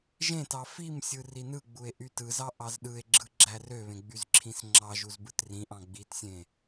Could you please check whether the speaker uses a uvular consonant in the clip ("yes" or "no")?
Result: no